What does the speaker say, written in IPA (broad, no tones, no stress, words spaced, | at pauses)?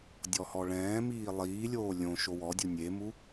dʲɔhɔɭɛ̃ːmiː lˠiːlʲoː lʲõ ʃowɔdʲu nʲemu